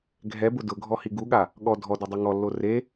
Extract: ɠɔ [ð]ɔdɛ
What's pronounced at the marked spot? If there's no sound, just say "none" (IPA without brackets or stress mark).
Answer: dʱ